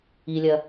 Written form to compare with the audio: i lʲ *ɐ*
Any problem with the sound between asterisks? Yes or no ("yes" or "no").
no